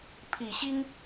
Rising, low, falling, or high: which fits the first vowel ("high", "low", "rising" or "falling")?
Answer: low